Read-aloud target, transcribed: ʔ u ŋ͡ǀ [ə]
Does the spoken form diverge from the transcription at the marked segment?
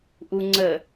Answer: no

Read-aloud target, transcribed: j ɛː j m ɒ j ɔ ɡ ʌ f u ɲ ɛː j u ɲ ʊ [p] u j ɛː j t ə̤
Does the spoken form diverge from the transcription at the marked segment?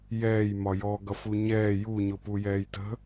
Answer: no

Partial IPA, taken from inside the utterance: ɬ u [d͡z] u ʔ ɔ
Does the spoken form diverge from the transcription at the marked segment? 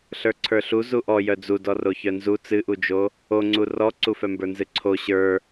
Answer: yes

